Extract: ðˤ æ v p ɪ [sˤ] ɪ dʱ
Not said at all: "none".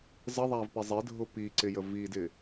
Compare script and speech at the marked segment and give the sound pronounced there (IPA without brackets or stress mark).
zˤ